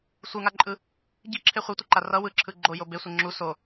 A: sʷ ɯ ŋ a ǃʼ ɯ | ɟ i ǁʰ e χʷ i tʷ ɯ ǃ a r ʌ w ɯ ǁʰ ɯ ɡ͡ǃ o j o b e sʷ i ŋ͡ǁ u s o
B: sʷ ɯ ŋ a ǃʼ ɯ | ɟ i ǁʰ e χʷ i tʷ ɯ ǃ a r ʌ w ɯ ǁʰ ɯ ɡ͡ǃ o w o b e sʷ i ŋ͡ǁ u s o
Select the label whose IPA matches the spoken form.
A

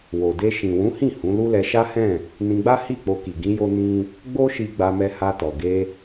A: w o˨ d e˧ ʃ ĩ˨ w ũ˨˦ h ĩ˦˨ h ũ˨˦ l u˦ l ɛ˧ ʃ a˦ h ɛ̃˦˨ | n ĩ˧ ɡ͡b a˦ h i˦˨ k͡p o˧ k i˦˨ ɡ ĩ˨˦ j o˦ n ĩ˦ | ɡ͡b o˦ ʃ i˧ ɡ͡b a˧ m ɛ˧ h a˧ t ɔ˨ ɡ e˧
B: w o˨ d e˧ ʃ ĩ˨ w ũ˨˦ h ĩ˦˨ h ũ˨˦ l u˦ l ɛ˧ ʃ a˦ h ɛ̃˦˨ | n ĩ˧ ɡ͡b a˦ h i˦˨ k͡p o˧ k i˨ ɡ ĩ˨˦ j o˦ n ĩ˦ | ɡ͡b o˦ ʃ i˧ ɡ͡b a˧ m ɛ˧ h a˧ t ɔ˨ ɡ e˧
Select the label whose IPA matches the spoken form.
B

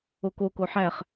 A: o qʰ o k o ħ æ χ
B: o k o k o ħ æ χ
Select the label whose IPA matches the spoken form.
B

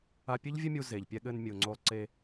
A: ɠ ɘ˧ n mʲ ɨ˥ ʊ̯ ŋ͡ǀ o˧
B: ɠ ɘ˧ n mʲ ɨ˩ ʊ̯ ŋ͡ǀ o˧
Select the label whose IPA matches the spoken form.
B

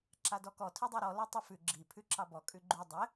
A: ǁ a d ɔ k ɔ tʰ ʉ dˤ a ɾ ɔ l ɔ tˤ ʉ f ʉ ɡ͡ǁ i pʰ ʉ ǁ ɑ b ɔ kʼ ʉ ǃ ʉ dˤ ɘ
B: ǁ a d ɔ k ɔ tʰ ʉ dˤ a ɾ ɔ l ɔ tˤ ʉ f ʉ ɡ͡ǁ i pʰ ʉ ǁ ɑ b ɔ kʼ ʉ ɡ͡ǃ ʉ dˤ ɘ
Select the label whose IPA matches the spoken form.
B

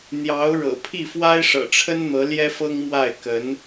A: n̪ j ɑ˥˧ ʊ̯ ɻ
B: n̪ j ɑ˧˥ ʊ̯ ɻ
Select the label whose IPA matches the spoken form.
B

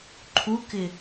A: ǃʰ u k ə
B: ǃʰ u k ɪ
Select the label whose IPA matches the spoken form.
B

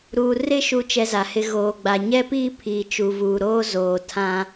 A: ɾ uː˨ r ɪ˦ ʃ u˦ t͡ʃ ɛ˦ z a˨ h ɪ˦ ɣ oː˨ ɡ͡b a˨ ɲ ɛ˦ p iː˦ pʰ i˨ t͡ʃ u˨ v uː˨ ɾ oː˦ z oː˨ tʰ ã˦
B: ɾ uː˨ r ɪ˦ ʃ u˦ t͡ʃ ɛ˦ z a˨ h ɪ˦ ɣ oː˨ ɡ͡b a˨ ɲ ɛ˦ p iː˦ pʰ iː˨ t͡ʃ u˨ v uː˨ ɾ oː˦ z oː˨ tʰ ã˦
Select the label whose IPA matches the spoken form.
B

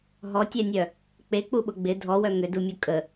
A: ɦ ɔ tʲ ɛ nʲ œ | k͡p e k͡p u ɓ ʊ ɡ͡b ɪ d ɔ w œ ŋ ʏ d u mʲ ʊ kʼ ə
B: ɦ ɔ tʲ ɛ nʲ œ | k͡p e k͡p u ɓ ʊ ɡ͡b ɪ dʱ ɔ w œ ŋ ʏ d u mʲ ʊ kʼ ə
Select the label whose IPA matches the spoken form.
B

